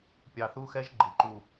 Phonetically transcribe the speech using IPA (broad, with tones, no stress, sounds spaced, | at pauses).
pʲ ɑ˨ θ u˦ x ɛ˦ ʒ ɡ͡ǃ i˨ ǃ u˦˨